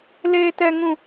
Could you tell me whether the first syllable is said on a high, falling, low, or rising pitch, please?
high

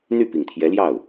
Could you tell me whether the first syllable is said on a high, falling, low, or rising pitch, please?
falling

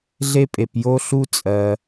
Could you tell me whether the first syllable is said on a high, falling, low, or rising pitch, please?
high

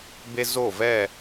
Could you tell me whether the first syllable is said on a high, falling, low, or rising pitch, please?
high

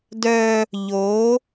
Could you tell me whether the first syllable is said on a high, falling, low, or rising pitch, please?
high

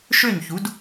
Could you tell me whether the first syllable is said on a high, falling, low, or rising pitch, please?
falling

